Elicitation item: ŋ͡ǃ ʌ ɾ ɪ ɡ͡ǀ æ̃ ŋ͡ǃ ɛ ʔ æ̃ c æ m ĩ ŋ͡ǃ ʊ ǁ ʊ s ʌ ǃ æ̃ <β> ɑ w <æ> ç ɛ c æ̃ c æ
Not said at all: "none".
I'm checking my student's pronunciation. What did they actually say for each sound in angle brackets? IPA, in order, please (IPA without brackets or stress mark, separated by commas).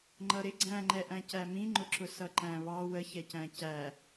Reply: β, ə